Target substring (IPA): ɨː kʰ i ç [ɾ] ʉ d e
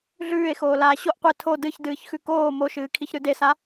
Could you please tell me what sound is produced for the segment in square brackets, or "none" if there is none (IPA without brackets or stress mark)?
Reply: ɾ